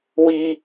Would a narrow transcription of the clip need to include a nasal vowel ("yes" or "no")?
no